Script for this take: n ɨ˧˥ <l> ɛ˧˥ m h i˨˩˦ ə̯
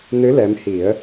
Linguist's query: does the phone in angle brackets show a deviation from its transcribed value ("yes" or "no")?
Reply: no